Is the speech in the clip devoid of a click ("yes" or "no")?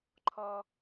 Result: no